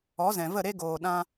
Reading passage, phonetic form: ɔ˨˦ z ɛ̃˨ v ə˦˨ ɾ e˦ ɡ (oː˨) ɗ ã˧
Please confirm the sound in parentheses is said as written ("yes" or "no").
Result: yes